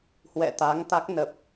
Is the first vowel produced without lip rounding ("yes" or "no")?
yes